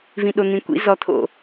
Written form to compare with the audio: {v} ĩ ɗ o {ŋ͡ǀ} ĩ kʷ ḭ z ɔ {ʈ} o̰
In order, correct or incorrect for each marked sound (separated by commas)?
correct, incorrect, incorrect